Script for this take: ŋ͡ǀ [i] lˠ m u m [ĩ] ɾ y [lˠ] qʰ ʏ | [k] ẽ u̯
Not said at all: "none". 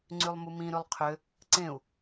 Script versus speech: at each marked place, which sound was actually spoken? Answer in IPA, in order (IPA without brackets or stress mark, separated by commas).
y, ĩ, lˠ, ǀ